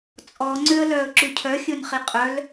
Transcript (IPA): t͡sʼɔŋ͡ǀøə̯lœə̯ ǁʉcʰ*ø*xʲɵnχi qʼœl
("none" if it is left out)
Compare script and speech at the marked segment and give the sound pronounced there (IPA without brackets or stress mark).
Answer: œ